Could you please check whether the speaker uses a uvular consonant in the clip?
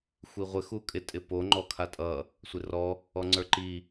yes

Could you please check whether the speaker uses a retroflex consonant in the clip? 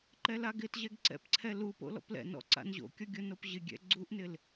no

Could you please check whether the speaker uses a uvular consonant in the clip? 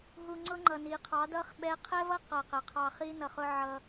yes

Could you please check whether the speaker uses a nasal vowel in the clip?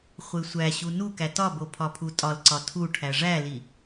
no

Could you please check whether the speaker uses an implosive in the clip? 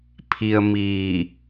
no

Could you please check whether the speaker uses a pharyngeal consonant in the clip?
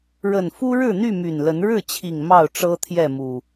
no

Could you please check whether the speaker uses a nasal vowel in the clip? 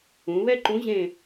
yes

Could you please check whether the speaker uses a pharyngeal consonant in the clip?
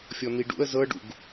no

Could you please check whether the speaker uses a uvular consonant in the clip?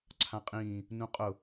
yes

